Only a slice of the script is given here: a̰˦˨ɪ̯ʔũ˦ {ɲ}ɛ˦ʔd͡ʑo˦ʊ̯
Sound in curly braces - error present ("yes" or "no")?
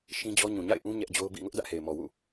no